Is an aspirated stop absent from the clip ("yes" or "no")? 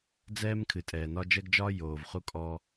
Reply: no